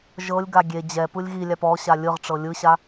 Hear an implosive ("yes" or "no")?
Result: no